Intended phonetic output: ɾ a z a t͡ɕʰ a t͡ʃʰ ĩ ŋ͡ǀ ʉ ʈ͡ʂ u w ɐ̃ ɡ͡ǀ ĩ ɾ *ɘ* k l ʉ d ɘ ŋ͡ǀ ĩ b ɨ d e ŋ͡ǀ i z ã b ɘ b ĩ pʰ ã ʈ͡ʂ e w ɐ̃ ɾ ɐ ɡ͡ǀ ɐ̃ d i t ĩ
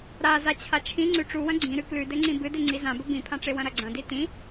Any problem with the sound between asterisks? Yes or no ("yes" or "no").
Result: yes